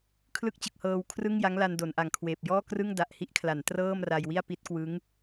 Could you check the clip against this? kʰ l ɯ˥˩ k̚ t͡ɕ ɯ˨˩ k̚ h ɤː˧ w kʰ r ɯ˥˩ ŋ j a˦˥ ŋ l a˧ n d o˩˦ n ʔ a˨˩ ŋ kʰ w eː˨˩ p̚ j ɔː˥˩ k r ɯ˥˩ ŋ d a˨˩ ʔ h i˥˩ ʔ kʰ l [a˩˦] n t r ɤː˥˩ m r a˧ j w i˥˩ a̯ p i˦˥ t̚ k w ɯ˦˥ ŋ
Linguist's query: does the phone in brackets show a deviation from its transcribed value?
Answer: no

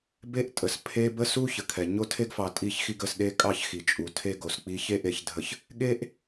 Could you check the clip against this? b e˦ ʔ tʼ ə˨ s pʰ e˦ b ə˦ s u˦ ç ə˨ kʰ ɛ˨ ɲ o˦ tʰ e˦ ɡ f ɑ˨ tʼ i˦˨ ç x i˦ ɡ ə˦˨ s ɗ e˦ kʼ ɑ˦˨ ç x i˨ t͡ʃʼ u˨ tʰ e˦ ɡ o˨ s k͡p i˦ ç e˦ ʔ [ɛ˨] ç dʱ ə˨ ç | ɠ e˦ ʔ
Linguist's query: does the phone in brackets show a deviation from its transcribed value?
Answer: yes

